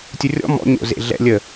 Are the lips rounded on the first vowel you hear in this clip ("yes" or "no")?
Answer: yes